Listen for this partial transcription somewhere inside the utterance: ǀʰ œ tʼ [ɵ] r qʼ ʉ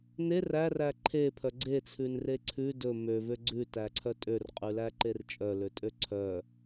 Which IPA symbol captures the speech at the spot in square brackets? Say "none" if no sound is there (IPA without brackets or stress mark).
ø